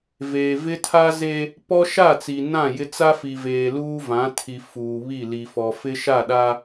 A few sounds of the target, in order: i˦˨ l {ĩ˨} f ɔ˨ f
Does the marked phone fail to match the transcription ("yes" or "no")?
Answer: yes